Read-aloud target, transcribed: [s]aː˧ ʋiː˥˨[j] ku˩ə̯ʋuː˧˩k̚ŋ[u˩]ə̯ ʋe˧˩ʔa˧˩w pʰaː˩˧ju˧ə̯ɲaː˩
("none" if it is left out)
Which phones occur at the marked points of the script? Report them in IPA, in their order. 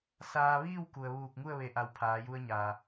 s, w, u˥˨

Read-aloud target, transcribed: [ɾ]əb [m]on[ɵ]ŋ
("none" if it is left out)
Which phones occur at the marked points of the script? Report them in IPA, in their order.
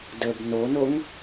d, n, o

